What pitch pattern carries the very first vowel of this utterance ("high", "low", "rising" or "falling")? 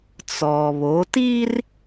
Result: low